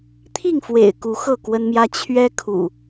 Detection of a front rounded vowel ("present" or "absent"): absent